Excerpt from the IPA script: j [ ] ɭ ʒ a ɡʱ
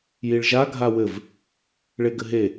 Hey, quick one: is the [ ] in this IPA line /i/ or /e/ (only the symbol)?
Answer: i